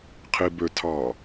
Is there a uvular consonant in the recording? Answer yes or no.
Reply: yes